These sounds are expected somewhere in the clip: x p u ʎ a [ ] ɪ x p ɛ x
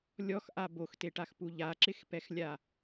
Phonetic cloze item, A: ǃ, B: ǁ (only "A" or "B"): B